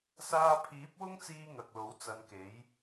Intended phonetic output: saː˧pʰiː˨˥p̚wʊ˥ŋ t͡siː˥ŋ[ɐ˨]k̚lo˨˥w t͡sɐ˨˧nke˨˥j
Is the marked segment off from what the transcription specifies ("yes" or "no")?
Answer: no